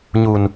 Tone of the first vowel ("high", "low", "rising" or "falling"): low